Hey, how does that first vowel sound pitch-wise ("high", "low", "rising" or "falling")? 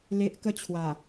low